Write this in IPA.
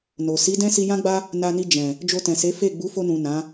n o˨ s i˨˦ d ɛ̃˦ s i˧ j ã˦ ɡ͡b a˦ | n a˧ n i˧ d͡ʒ ɛ̃˨ | d͡ʒ o˧ t ɛ̃˨ s e˨˦ f e˦˨ ɡ͡b u˨˦ f o˧ n ũ˨ n ã˨˦

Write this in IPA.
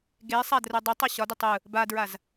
ɡ e sˤ a d r ɯ dˤ o tˤ o ɕ ɒ d ʏ tˤ ɯ | b a d ɹ a z

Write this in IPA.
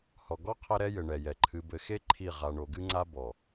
h ɔ˨ ɡ ɔ˦ qʰ ɛ˦ ɾ ɛ˦ j ɘ˨ ɳ ɛ˨ j ɛ˨ ǃʰ ɨ˨ b ɘ˨ x e˦ ǃʰ i˦˨ ʁ a˨ ɳ o˨ ɡ ɨ˦ ŋ͡ǀ a˦ b ɔ˨

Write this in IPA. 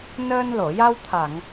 n əː˧ n l o˨˩˨ j a˧ w t̪ʰ a˨˩˨ ŋ

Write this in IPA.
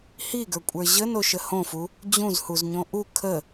h i ɡ ə˞ kʷʼ ə˞ ʑ ə n o ʃ ə h õ f u | d͡ʑ ũ z h u z ɲ õ ʔ u kʰ ə

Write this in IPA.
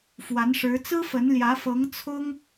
f w a˧˥ n ʂ ɻ̩˧˥ t͡s ɹ̩˥ f ə˧˥ n l j ä˧˥ f ɤ˧˥ ŋ t͡sʰ ʊ˥ ŋ

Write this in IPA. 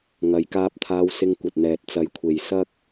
ŋ ɐ˨˧ j k aː˧ p̚ t̪ʰ aː˧ w s ɪ˧ ŋ kʷ ɐ˨ t̚ n̪ ɛː˨ t̚ t͡s ɐ˨˧ j kʷʰ e˨ j s ɐ˥ k̚

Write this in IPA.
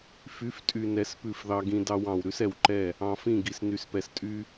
f y˨˦ f tʼ y˨ n ɛ˨ s p ʉ˦˨ f ð ɑ˦ ɡ ĩ˦ d ɑ˦ w ɑ̃˨ w ɾ ʉ˦ s ɛ˨ w ǃ ɛ˦˨ | ɑ̃˨ f ĩ˦˨ ɡ i˨ s n y˨ s p ɛ˨ s tʼ y˦

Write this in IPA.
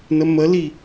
n ə m ə l i

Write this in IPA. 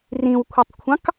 r ĩ w kʷʰ ɐ tˤ kʷʰ ɑ̃ k

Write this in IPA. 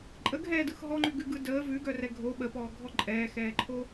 ǃʼ ə ɡʱ ɛː d ɯ x ɦ ɔ ŋ͡ǃ ʉ ɡ ʉ ɡ ɯ d əː v ʉ ɡ œ r ɛ ɡʱ o ɓ ə p ɔː ɡʱ ɔ ǃʼ ɛː x ɛː ǃʰ o

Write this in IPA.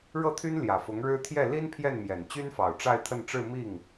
ɻ ɤ˥˩ t̪ʰ y˥ n l j ä˨˩ f ʊ˧˥ ŋ ɻ ɻ̩˥ t̪ʰ j ɛ˥˩ l i˥ n pʰ j ɛ˥˩ n m j ɛ˨˩ n t͡ɕ y˥ n f ɑ˨˩ ʊ̯ ʈ͡ʂ a˥˧ ɪ̯ t̪ʰ ə˥˧ n ʈ͡ʂ ɻ̩˥˧ m i˥˩ ŋ

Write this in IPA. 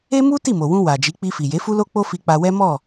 e˦ m u˦ t i˦˨ m o˨ w ũ˧ w a˨ d͡ʒ i˨˦ k͡p i˧ f i˨ j e˨˦ f u˦ l o˦ k͡p o˦ f i˧ k͡p a˧ w ɛ˦ m ɔ˦˨

